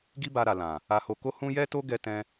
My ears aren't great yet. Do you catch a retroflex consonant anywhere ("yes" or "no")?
no